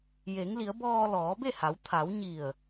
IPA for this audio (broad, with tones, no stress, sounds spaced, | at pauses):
j e˩˧ ŋ l i˩˧ ə̯ b ɔː˧ l ɔː˩˧ b e˥˨ h a˩˧ w t̪ʰ a˩˧ w ɲ i˧˩ ə̯